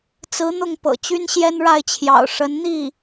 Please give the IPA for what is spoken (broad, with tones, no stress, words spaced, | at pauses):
t͡sɹ̩˧˥n̪ʊ˥˩ŋ pɤ̰˨˩t͡ɕy˥nɕjɛ˥n ɻa˥˩ɪ̯t͡ɕʰjɑ̰˨˩ʊ̯ ʂə˧˥nn̪i˥˩